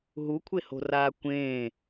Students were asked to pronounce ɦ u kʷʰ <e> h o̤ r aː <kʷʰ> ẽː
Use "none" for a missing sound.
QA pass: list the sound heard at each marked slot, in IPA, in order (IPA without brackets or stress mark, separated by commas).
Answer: e, kʷ